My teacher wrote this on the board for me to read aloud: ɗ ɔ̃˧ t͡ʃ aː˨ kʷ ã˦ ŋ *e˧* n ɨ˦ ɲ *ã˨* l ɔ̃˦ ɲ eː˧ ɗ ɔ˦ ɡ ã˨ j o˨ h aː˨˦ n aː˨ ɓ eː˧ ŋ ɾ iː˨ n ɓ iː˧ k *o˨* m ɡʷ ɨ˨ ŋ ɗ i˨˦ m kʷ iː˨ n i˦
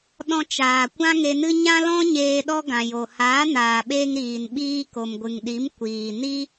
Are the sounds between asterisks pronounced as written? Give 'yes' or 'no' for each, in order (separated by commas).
yes, no, yes